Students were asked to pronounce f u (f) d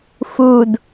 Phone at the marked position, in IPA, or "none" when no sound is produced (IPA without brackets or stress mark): none